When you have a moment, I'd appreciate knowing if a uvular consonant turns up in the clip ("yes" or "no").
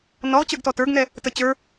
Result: yes